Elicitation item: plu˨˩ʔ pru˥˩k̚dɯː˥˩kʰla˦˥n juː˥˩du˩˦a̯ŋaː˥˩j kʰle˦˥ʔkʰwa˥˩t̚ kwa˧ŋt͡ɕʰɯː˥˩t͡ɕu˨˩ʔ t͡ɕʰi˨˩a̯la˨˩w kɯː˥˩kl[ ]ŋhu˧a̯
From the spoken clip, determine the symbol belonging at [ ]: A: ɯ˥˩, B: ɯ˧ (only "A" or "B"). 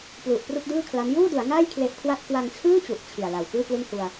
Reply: A